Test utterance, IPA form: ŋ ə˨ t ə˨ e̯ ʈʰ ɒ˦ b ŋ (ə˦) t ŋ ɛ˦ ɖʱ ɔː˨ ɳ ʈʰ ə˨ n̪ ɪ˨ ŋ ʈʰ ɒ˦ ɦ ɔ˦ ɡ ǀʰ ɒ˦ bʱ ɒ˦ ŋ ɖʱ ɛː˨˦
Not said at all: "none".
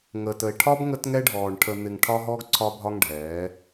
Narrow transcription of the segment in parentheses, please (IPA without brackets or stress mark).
ə˦